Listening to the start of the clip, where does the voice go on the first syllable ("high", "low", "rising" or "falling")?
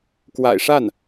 low